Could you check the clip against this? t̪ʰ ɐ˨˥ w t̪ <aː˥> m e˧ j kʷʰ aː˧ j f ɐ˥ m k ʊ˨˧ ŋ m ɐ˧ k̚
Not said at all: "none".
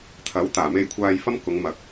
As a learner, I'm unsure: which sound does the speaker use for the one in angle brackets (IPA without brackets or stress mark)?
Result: aː˨˩